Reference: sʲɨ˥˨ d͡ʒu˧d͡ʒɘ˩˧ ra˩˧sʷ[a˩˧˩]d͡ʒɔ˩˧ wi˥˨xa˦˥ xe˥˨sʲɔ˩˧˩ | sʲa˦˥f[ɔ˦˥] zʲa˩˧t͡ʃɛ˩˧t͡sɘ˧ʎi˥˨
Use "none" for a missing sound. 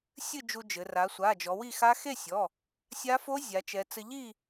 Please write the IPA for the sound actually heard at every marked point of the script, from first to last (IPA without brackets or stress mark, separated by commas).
a˩˧˩, o˦˥